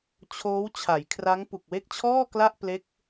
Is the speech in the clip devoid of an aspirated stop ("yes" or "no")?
no